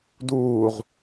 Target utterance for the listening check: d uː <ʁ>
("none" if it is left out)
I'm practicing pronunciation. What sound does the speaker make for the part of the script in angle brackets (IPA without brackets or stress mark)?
ʁ